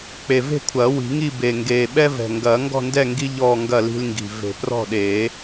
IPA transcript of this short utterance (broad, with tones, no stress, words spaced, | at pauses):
k͡pe˨˩ve̤˥˨kʷʰɐː˨˩˦ wi̤˨˩˦ŋi˥˨ be˨˩ŋɡeː˨˩ ɓɛ˦vɛ̤˨˩ ŋɡɐː˨˩˦ŋɡɔ̤˥˨ ndɛ˥˨ŋɡi˦ ʎɔː˥˨ ŋɡɐ˥˨li̤˦lŋɡi̤˨˩ ve̤˨˩˦prɔ̤˥˨ɗeː˨˩˦